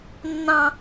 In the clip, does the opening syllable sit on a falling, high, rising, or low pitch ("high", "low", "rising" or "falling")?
high